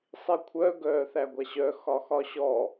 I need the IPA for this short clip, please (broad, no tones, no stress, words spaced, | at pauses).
sˤikʷʰœ ɡœːθæɡʷaɕœ xɒxɒɕɔ